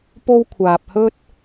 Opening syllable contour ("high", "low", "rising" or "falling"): high